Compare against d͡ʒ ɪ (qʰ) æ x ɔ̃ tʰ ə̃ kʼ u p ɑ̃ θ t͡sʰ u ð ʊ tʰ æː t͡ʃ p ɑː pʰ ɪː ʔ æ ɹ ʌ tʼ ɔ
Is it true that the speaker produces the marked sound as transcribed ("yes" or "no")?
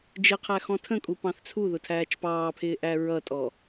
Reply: yes